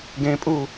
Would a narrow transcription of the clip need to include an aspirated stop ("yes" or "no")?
no